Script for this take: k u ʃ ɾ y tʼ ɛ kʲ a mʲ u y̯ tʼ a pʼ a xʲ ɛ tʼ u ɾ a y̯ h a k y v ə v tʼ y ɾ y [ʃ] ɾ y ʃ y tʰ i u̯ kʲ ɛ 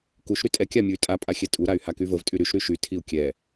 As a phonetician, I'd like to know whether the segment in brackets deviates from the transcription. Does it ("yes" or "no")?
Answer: no